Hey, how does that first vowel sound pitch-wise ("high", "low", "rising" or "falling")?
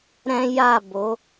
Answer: high